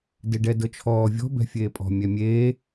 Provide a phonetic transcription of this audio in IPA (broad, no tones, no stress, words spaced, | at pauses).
deɖɛdɤt͡ʃʰɔː vʲɔ̤ bɛ̤fʲeːpʼɔ̤ mʲɛmʲeː